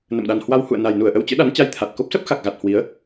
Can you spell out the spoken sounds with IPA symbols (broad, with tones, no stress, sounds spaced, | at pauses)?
n ə̰˧˨ m ɗ a˨˩ n h w a˧ w h ṵ˧˨ ə̯ n a˨˩ j n u˧˩ ə̯ ʔ ə˧ w t͡ɕ ɨ̰˧˥ ɗ a˨˦ n t͡ɕ a˧ j t̪ʰ a˨˩ t̚ k o˦˥ p̚ s ə˦˥ p̚ x a˨˩ k̚ ɣ a˨˩ t̚ h w i˨˦ ə̯